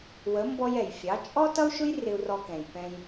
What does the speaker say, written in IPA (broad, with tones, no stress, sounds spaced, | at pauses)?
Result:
w ə˩˥ m b ɔ˧ j ɛ˩ j fʲ ɑ˩˥ t͡ʃʼ ɔ˥ t ʌ˥ u̯ ʃ ʊ˥ j r ɪ˧ u̯ r ɔ˧ k ɛ̃˩ j p ɛ̃˧ j